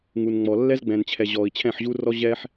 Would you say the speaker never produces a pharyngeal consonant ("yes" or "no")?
no